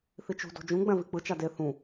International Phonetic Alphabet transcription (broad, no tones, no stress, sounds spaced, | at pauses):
θ i t͡ʃ ṳ d o̤ d͡ʒ ũ ɡ͡b ɛ̃ v i k͡p ɯ t͡ʃ a d e θ ũ